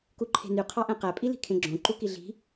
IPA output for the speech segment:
k u ǃʰ e̤ n y qʰ ɑ ʔ æ̃ q æ pʼ i l i̤ kʰ ẽ ɡ͡ǁ õ ǃ u k i ɮ i̤

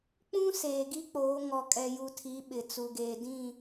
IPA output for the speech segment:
k͡p ũ˦ s eː˨ ɡ i˦ k͡p oː˨˦ ŋ ɔ˨ kʼ ɛ˨ j u˨ tʰ i˨˦ ɓ ɪ˨ t͡s u˨ ɡ eː˨ d ĩ˦˨

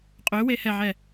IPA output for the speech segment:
qʼ ø w e h ɛ ʕ ɛ

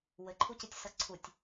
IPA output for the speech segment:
w ɘ ǃʰ u c ɨ tʲ s ɐ ǀʰ u tʲ

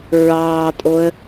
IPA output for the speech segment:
ɹ ɑː tʼ o ə̯

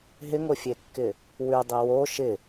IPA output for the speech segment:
ɦ ɪ ŋ o fʲ e kː ɪ | w ʉ dˤ i w o ʃ ɪ

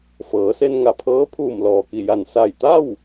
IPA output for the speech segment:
f ɤː˩˧ s e˧ n ŋ a˧˩ pʰ ɤː˧˥ pʰ uː˧˩ m l ɔː˩ k i˧˩ j a˧˩ n s a˧˩ j t̪ a˥˨ w

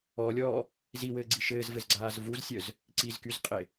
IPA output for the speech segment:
ɔː lʲ ɔː | z i w ɘː ɡ͡ǀ i ʃ ɘː z v ɘ z ɡ͡ǀ aː z v u z sʲ œ z | ǀ i z k y z qʼ e

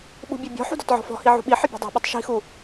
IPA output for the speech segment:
ɓ ṳ bʲ ɛ bʲ ɔ̤ ħ ṳ d ɔ t ʕ ɔ̤ f ɔ̤ h i ʕ ṳ ɓ i ħ ɪ bʲ ṳ dˤ ɛ̤ ɓ ɪ tˤ ʃ i̤ x u

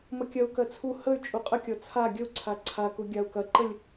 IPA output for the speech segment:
m ə kʲ ɐ u̯ k ɜ t͡sʰ u h ə y̯ t͡ʃʼ u qʼ ə kʲ ɔ t͡sʰ a ɡʲ ə u̯ ǀʰ a ǀʰ a k u ɡʲ a u̯ k ɐ ǃ ə lʲ

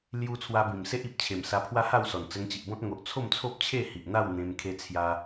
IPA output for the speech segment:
l j u˦ t͡sʰ w a˧ b ĩ˨˩ m s e˦ ʔ i˨ p̚ t͡ɕʰ e˨˩ m s a˧ pʰ w a˦ h a˥˧ w s ɔ˨˩ n t͡s ə˧ ŋ t͡ɕ i˨ ʔ b ɔ̃˦ t̚ ŋ o˨ ʔ t͡sʰ o˥˧ m t͡sʰ o˦ p̚ t͡ɕʰ e˥˧ h i˨ ʔ n̪ a˥˧ w n̪ ẽ˧ m kʰ e˦ t͡sʰ j a˦

